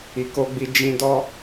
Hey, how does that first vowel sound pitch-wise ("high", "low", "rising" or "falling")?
low